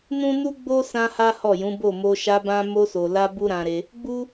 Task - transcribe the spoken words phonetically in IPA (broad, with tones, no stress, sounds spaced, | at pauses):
n ũ˦ n u˦ ɡ͡b o˦ s ã˦ h a˦ h ɔ˦˨ j ũ˨˦ b o˦˨ m o˧ ʃ a˧ b ã˧ m o˧ s o˨ l a˧ b u˦ ɾ ã˧ ɾ e˧ | ɡ͡b u˦